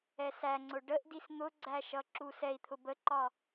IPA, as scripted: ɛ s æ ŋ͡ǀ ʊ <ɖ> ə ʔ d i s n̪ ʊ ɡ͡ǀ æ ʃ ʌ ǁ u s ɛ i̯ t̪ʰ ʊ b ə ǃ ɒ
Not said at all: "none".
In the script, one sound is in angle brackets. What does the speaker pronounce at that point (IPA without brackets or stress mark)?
ɖ